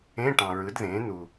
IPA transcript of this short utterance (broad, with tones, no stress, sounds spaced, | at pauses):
ẽ˧˥˧ ʈ ɑ̃˨ ɹ ɯ˩˥ d ð ẽː˩˥ n̪ u˨